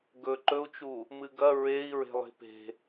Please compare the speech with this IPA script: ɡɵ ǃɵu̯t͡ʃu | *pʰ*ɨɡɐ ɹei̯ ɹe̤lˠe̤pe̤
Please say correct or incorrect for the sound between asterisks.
incorrect